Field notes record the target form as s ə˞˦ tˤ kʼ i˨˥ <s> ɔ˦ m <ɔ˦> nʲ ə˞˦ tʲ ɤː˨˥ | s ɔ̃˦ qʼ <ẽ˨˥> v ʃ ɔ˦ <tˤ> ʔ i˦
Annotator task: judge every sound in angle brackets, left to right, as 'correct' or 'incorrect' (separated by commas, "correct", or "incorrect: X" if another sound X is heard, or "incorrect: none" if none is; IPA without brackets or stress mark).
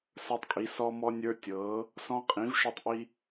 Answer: correct, correct, incorrect: ĩ˨˥, correct